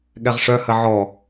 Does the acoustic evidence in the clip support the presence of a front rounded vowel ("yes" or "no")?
yes